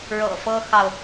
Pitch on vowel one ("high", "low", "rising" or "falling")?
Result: low